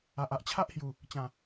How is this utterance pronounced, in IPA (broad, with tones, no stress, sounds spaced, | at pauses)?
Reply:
a˨ ʔ a˨ ʔ t͡ɕʰ a˦ ʔ h j u˨˩ | t͡ɕ ã˨˩